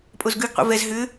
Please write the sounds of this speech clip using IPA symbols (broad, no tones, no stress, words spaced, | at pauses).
pʼozɡʉɡqʷḭ vɛz ɦʏ